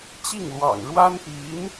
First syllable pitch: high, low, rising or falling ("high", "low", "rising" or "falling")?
falling